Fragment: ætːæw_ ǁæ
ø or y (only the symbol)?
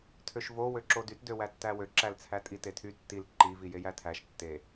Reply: ø